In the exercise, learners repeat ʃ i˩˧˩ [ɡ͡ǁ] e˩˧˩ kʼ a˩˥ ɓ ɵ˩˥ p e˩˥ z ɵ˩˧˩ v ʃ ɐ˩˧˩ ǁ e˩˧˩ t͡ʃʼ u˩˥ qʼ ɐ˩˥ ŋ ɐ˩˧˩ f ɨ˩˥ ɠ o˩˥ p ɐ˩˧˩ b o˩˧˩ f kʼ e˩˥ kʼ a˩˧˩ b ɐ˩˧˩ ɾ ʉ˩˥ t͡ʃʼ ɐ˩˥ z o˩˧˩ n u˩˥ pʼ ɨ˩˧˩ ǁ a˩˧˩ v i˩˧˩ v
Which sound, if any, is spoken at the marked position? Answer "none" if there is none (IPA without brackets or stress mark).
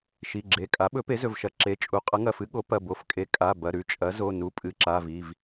ɡ͡ǁ